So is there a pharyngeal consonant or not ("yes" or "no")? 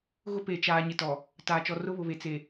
no